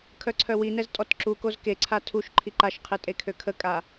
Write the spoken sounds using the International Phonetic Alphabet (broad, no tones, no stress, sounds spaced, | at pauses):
kʰ œ ǀʰ œ w i n ɛ z tʼ ɔ t ǁ u k o z k e ǀʰ a tʰ u ʃ ǃʰ i ǃ a ʃ qʰ e tʼ e kʰ ø kʰ ə kʼ a